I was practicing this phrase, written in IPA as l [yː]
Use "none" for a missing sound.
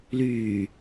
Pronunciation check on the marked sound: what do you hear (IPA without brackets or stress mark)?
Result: yː